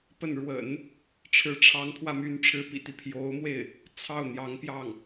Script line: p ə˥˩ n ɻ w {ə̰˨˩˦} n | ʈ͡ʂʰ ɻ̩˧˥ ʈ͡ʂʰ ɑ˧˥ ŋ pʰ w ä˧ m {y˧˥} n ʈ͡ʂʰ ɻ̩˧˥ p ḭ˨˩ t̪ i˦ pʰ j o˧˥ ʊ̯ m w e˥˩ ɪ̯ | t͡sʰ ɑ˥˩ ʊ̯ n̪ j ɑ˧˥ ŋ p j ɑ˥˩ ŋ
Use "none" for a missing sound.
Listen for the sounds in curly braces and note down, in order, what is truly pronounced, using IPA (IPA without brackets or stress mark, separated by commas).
ə̰˨˩˦, y˧˥